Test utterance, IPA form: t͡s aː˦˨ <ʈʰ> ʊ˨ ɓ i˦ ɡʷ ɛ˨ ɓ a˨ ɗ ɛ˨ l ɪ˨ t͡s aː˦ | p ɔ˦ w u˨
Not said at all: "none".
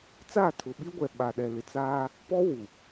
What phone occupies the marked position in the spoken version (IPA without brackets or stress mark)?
tʰ